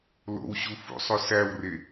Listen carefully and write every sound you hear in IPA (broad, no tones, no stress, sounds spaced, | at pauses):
l o̰ w ɕ u f ṵ sˤ o s æ w r e